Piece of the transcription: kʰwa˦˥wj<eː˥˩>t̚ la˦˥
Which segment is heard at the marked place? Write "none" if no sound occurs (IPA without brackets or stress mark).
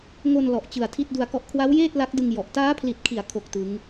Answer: eː˥˩